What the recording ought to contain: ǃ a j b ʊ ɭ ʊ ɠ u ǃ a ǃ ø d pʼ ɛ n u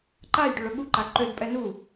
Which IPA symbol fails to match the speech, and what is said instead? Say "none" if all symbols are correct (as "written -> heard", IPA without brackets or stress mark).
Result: b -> ɖ